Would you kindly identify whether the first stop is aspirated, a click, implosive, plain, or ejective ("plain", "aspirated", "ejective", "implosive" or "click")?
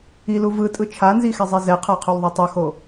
ejective